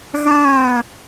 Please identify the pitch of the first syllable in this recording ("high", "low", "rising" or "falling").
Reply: falling